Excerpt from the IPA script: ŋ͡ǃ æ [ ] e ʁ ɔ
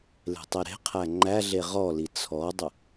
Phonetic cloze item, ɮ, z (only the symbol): ɮ